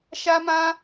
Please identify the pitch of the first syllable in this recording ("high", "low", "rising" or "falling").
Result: high